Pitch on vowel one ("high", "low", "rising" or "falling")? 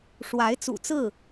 rising